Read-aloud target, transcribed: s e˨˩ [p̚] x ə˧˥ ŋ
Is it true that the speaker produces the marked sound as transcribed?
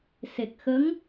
no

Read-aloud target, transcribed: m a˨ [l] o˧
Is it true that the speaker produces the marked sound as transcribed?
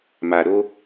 no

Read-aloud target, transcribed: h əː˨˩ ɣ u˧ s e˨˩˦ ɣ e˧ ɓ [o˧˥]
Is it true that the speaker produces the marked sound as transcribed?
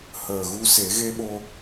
no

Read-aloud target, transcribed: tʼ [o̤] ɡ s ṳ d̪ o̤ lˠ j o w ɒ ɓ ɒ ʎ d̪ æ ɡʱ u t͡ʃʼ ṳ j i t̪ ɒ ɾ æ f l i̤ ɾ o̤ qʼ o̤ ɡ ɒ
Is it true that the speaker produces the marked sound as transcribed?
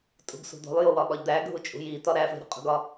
no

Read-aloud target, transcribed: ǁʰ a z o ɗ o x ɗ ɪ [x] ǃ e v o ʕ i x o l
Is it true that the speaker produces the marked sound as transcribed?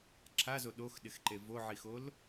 yes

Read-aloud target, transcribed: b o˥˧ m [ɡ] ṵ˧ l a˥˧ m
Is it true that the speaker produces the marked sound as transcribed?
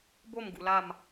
yes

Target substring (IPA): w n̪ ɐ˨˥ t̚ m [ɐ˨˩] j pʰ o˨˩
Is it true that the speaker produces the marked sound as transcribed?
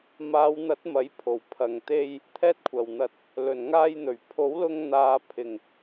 no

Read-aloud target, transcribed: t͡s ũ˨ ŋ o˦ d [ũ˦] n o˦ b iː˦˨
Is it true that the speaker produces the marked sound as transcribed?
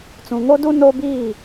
no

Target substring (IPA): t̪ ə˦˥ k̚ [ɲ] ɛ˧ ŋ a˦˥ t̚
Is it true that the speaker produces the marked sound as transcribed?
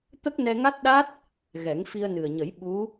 no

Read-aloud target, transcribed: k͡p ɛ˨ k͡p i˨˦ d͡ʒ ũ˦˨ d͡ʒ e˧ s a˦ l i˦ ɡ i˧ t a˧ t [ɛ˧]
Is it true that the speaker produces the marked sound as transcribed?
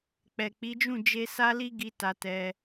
yes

